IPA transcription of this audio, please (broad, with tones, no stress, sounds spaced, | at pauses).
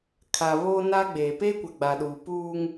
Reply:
kʰ a˨ β oː˦ n a˦ ɡ͡b eː˨ p eː˦ kʷ a˨ ɡ͡b a˨ ɗ uː˨ p uː˦ ŋ